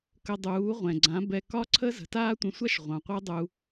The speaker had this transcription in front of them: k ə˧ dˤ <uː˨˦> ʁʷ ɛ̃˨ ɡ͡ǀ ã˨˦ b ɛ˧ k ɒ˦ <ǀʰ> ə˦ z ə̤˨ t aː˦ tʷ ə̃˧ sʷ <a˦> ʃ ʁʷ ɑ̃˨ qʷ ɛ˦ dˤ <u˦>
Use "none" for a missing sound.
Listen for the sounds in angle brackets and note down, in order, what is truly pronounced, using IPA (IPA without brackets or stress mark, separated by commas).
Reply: uː˨˦, ǀʰ, a˦, u˧